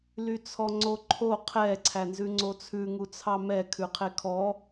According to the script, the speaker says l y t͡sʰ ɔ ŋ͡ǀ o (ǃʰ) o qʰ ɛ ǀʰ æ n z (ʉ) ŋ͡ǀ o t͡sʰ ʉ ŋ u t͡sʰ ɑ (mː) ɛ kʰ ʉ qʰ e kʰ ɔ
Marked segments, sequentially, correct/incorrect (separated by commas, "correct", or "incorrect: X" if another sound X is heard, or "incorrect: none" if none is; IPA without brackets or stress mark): correct, correct, incorrect: m